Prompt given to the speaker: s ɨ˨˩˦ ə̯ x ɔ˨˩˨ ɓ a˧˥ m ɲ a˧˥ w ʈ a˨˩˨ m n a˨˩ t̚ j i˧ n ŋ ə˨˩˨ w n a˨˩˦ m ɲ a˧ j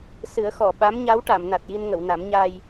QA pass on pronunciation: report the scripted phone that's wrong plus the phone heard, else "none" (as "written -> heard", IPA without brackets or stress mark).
none